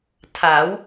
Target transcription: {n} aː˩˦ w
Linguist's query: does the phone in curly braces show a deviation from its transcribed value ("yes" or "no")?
yes